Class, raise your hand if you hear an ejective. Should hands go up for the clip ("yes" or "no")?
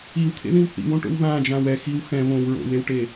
no